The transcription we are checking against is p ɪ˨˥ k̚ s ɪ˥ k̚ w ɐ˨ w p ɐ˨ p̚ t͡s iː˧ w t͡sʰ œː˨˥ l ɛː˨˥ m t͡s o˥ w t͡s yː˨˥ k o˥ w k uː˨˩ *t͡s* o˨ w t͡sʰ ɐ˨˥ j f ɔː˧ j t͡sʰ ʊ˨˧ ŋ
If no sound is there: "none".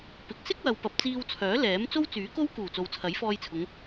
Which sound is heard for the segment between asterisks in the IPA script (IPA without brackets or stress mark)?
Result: t͡s